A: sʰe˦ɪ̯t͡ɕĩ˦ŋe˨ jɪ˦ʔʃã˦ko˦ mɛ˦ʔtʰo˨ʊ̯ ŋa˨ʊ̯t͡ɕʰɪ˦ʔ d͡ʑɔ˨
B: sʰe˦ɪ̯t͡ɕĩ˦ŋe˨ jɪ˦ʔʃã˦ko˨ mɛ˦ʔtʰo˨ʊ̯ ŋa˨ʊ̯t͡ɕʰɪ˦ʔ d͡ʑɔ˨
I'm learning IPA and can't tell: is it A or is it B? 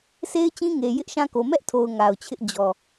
B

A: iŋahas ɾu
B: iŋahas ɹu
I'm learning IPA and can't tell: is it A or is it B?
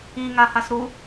A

